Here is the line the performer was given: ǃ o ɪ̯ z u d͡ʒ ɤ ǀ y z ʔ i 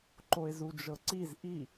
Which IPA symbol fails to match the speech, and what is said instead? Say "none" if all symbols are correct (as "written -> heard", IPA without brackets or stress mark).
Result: y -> i